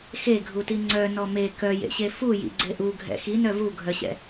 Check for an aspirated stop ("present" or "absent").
absent